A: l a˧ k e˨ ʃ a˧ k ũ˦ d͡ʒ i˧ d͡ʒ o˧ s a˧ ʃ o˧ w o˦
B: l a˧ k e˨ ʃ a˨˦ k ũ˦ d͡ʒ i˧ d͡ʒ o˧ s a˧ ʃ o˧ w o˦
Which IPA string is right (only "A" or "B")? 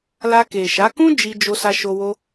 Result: B